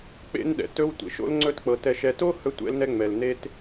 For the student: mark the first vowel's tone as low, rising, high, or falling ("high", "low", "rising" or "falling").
high